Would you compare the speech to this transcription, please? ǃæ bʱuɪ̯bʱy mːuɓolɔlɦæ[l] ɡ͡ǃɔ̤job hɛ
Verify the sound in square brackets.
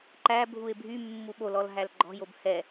correct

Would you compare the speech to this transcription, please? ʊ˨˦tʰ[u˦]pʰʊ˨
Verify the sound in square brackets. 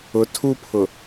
correct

